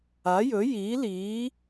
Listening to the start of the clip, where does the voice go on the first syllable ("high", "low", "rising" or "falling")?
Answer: rising